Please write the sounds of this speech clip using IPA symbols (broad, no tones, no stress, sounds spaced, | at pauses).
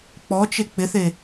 k͡p ɔ t͡ʃ e k͡p ɪ θ e